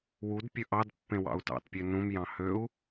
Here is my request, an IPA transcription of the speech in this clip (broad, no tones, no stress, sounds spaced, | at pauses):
w u d pʲ ɵ ʔ ɑ d pː ẽ w ɑ̰ u̯ t ɑ̰ t pʲ ø n ũ m j ɑ̃ h ø u̯